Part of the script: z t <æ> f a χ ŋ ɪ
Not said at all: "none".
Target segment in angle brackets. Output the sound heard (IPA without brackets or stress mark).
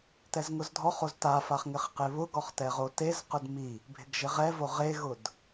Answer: a